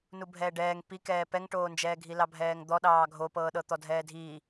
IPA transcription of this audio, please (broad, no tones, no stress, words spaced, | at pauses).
nubʱɛːɖɛːŋ pikɛː pɛŋʈoːnd͡ʒɛːɡʱi lɑbʱɛːŋd̪ɔɗɑː ɡʱopɤːɗɤ t̪ɔdʱɛːdʱiː